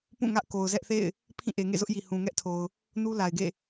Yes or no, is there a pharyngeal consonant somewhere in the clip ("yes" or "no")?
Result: no